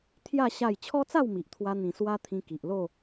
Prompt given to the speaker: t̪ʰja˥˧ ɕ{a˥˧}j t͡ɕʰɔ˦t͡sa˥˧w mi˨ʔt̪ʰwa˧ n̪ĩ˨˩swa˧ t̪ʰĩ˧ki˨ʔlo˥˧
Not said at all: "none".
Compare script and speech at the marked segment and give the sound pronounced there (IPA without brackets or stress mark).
a˥˧